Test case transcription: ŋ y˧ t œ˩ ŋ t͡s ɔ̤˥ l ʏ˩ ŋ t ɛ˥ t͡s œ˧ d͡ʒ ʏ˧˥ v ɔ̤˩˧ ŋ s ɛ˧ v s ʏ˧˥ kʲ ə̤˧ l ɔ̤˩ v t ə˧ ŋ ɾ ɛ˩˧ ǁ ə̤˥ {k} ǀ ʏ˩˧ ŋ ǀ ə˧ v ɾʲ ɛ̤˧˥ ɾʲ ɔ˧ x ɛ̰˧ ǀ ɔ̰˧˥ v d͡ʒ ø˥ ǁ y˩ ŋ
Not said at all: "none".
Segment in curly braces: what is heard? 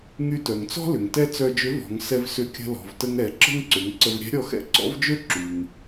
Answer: ŋ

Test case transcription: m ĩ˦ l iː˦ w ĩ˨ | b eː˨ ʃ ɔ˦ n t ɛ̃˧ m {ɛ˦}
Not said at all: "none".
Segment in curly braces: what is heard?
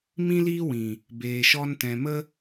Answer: ə˦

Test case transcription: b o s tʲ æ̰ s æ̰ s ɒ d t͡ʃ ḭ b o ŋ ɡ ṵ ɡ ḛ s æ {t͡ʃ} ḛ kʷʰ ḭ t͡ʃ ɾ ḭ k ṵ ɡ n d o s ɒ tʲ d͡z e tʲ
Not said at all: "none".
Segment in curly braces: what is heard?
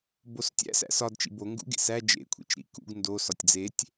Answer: d͡ʒ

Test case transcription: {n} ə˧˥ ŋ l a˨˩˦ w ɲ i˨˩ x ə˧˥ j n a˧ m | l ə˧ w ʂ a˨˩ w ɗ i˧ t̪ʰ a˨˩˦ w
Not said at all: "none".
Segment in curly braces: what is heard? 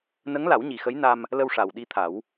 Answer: n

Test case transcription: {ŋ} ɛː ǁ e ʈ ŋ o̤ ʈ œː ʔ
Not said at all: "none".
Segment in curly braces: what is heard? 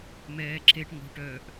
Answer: m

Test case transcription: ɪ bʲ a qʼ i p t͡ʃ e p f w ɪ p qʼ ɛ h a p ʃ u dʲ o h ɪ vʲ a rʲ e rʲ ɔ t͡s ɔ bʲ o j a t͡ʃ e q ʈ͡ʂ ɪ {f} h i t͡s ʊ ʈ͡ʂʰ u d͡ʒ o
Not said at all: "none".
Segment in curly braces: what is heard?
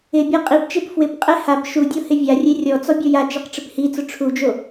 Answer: p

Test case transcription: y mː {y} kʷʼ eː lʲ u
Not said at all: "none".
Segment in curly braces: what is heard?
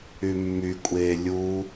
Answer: y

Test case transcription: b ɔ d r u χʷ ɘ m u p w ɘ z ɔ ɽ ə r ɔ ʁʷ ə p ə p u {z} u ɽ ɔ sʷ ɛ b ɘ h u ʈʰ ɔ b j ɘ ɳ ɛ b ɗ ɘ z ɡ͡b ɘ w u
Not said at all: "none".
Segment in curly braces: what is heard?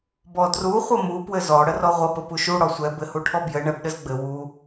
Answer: ʃ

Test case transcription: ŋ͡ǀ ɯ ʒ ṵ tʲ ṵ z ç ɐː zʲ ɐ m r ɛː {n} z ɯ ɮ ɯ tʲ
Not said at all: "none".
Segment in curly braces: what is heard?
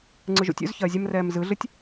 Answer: m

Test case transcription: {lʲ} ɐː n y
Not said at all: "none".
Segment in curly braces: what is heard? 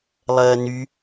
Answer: lˠ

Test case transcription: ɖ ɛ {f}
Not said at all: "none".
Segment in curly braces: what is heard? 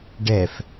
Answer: f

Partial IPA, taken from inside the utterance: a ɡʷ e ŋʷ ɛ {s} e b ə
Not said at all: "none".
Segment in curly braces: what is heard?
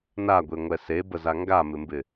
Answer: s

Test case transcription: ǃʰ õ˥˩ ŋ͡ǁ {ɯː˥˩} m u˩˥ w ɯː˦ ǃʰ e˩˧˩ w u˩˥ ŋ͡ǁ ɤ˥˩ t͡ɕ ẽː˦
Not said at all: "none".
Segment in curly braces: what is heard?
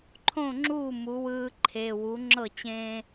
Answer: uː˥˩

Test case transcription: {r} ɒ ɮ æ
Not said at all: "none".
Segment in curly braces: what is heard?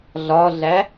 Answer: ɮ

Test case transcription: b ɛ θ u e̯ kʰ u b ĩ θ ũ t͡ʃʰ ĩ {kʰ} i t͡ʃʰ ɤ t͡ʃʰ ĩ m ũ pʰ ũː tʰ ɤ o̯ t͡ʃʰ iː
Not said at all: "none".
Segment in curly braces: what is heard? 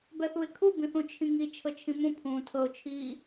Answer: ŋ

